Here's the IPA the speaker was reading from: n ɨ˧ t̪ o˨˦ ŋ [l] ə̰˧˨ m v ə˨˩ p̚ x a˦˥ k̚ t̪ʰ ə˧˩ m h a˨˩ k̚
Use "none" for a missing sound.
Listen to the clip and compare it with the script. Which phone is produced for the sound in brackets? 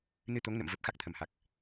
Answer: n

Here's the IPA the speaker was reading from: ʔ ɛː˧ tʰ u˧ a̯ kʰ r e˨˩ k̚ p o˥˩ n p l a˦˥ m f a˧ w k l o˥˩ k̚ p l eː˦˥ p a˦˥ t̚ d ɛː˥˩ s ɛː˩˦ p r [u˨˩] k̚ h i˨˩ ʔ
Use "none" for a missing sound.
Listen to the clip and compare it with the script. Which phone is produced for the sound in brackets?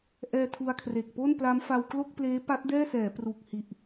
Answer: u˨˩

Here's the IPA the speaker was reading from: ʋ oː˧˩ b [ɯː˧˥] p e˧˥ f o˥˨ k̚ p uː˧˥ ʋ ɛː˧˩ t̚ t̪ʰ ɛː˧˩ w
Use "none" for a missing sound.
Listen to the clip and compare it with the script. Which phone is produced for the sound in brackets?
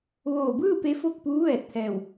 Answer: ɯː˥˨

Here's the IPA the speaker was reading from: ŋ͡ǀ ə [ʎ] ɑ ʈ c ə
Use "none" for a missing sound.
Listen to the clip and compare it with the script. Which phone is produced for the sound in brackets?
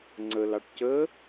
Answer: l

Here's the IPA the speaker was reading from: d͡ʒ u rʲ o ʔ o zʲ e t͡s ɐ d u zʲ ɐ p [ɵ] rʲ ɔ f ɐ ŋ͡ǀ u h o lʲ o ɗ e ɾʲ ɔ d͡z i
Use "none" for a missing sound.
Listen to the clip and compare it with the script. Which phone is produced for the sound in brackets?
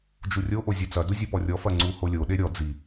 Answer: ɔ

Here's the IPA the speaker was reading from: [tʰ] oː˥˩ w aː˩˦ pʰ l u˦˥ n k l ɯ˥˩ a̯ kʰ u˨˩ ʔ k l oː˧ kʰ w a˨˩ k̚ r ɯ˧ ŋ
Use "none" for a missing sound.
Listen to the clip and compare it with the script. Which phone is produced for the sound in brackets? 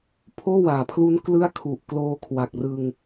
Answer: pʰ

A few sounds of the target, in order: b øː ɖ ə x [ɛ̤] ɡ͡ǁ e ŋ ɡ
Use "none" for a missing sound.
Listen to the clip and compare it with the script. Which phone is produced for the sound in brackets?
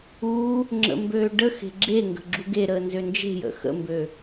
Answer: e̤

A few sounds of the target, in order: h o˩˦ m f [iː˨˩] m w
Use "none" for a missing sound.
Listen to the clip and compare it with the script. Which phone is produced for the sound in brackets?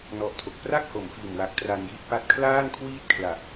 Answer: iː˨˩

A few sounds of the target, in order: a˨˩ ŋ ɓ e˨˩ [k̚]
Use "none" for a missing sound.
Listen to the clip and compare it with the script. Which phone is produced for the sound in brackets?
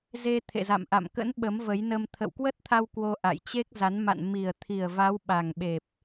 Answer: p̚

